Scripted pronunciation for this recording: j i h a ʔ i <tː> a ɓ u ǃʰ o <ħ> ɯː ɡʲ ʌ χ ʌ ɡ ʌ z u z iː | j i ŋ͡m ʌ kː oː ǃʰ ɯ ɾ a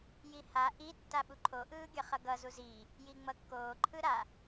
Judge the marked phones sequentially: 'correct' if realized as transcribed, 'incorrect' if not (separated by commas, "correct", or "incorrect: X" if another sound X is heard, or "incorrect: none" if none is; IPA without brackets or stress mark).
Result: correct, incorrect: ʔ